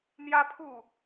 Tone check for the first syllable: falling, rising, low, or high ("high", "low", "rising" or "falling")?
high